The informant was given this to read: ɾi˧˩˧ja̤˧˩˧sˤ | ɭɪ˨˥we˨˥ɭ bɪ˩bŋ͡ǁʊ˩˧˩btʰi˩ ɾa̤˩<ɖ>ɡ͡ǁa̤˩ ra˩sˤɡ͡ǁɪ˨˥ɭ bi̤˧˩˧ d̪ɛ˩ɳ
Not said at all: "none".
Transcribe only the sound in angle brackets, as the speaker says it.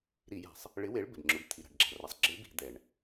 ɖ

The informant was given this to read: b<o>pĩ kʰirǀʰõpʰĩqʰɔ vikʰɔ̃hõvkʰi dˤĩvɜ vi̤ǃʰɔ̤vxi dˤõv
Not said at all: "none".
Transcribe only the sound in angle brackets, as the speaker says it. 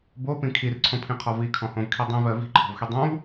o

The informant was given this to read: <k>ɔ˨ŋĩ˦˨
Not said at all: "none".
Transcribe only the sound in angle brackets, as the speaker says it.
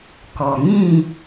k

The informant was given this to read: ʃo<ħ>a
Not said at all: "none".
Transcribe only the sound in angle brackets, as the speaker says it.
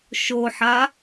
ħ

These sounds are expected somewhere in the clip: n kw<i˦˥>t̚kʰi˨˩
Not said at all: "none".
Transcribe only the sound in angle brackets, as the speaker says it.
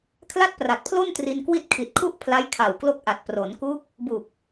i˥˩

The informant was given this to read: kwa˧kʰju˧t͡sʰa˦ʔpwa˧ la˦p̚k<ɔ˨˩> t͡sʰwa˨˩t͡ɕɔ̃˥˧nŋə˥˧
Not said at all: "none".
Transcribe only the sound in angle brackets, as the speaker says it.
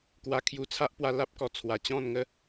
ɔ˨˩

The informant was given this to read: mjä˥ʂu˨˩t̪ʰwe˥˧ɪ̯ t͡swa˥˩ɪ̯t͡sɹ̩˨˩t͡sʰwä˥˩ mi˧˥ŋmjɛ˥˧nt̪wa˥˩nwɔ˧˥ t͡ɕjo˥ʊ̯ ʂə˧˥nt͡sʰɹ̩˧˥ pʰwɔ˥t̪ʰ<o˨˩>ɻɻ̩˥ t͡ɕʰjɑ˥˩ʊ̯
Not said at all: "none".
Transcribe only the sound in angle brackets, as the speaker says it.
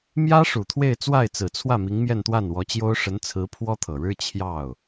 ɤ˨˩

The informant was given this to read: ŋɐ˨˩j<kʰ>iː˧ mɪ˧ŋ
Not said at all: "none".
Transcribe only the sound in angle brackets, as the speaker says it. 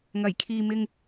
kʰ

